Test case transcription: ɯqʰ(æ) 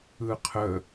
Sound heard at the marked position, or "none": ə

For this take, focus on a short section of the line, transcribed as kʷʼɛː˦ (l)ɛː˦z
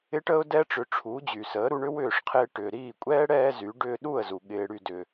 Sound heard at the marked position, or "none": ɽ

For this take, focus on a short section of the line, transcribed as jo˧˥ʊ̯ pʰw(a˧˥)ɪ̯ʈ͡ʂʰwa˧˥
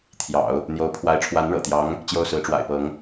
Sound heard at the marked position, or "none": a˧˥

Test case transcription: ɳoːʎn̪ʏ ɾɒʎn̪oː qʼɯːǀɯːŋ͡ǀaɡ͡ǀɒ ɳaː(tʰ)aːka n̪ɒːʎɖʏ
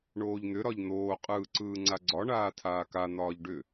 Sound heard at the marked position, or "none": tʰ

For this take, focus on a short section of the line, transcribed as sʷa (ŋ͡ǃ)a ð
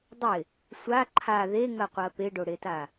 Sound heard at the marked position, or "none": ǃʰ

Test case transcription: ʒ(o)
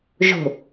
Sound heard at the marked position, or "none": o̤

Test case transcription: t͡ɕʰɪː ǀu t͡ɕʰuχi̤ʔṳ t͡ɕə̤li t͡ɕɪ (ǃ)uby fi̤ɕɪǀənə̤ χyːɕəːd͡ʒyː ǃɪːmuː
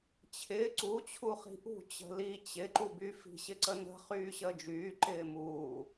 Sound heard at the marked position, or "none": ǃ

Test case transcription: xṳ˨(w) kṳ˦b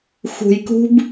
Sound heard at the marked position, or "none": j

